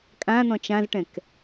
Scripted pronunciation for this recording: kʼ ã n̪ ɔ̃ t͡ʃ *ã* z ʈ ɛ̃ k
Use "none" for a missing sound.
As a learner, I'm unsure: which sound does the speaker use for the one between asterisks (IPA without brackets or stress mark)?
ã